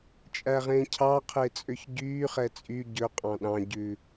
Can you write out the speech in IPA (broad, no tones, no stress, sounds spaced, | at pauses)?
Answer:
t͡ʃʼ æ ʁ ẽː cʰ ɑ qʰ e t͡sʼ ø ç ɟ yː χ ɛ t͡sʼ y ɟ ɵ qʼ ɑ̃ ɗ ɑ̃ ɟ ʉ